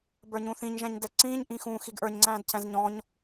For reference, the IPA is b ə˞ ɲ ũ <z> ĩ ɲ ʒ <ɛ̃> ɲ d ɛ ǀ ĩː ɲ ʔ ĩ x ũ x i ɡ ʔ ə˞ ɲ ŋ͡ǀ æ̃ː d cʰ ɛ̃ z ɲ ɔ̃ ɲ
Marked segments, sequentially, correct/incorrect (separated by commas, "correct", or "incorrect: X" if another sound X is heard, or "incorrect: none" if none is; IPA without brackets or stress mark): incorrect: θ, correct